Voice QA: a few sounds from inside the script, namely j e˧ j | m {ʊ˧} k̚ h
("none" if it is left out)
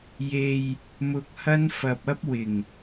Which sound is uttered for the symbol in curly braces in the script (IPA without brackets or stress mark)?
ʊ˧